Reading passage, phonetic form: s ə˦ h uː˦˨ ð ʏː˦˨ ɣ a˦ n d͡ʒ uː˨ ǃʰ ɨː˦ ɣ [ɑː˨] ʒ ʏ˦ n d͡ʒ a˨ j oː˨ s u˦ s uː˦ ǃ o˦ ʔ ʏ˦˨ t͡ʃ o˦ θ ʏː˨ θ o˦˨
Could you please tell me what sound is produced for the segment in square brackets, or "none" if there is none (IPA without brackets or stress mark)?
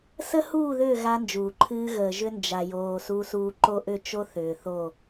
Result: əː˨